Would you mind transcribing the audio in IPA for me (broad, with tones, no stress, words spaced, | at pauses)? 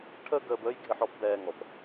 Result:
ʈʰəː˦ɡəː˧bəː˦jɡʱɪ˧ħ ɔ˦pbɛː˧ŋɔ˨p